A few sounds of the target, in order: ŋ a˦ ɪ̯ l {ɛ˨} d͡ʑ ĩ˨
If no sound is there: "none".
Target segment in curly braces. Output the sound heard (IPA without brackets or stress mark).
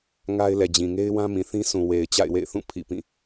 ɛ˨